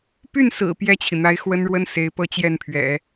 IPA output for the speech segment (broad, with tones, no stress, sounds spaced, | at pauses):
p y˥˩ n s ɹ̩˨˩ p j ɛ˥˩ t͡ɕʰ i˩ n̪ a˧˥ ɪ̯ x w ə˥ n ɻ w ə˥ n s e˧˥ ɪ̯ p ɤ˥˧ t͡ɕ j ɛ˥˩ n pʰ ɥ ɛ̰˨˩˦